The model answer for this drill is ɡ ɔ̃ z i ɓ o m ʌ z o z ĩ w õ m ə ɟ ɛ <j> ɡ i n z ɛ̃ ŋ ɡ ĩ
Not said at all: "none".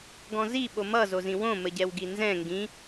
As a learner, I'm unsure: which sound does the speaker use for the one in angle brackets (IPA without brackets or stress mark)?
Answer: w